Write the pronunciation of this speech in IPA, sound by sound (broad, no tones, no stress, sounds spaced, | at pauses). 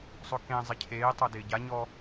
sˤ ʊ k ẽ zˤ ɪ cʰ eː tˤ o d ɪː ɟ a ɲ ɔ